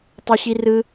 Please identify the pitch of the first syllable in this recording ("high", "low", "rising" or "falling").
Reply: high